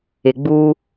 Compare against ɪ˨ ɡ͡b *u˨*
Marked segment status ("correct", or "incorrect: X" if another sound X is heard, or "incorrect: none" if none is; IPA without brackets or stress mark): incorrect: u˦